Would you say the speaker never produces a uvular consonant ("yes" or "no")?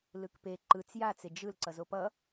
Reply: yes